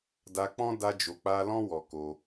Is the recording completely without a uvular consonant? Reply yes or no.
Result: yes